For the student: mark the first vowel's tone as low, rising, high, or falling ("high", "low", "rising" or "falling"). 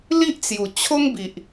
high